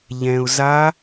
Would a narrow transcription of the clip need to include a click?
no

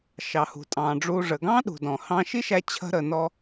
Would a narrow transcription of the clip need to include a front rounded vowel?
no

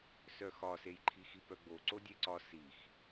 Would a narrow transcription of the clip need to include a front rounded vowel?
yes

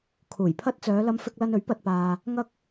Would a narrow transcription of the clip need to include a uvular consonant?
no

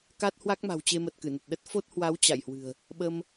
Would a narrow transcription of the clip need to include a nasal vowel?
no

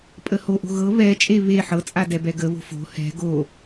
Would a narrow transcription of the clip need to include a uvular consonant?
no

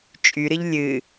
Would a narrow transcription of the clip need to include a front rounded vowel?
yes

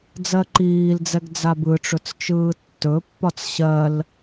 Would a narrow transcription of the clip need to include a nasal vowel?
no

